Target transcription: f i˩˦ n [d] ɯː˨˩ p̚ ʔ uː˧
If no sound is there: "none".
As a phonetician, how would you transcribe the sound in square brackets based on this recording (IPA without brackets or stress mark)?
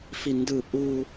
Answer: d